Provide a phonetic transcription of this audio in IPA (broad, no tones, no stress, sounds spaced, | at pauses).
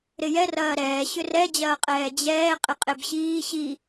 ɾ ɪ j ɛ r ɐː ɾ ɛː ɕ ʏ r ɛ d͡ʑ ɐː qʼ ɛː d͡ʑ ɛː qʼ ɪ qʼ e b ɕ iː ɕ i